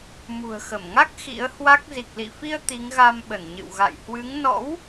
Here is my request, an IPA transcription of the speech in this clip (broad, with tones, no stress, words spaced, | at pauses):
mṳ˨˩ə̯xə˧˩mŋa˦˥k̚ xḭ˧˥ə̯hwa˦˥k̚ zi˨˩k̚lḭ˧˨fi˧ə̯ t̪i˨˦ŋɣa˧mɓə˧˩n ɲɨ̰˧˨w ɣa̰˧˨jhwɨ˨˦ŋ nɔ̰˧˥w